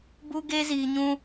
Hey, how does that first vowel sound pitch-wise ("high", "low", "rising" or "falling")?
high